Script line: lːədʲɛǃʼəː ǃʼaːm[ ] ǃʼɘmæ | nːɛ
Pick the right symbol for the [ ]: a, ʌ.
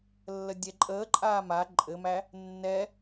a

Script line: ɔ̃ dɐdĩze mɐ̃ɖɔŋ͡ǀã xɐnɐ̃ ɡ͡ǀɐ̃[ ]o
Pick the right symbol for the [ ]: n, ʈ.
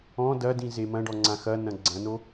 n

